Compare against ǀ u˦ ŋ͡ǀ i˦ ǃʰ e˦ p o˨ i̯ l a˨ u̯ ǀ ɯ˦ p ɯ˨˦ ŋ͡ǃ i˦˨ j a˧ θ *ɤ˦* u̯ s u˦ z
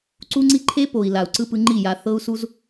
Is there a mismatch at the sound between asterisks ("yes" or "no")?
no